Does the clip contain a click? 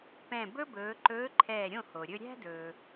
yes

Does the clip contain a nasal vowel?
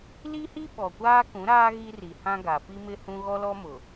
yes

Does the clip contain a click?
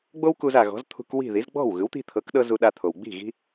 no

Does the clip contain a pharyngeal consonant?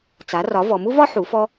yes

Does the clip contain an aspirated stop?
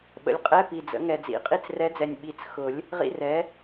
no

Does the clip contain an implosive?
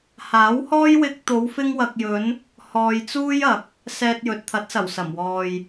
no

